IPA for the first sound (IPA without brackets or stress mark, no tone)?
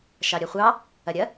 ʃ